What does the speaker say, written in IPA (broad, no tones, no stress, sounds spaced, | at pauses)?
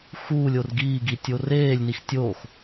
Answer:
x uː lʲ o r ɡ iː ɡ i tʲ o r eː lʲ n i x tʲ o x